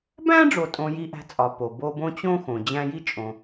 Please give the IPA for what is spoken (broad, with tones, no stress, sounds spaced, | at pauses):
b æ̃˥ ɖ͡ʐ o˨ tʼ õ˨ j i˦ ʔ æ̤˦ t͡sʼ ɒ˨ p o˩ b o˦ b õ˥ t͡ɕ õ˥ x õ˩ d͡ʑ æ̃˦ j i˥ t͡ʃʼ õ˨